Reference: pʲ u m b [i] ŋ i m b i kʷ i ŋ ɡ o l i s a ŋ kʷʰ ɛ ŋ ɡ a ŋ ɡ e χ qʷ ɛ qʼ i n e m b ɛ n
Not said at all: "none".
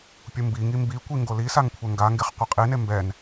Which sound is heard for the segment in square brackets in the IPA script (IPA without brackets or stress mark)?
i